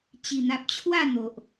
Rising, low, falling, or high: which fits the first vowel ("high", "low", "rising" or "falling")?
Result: low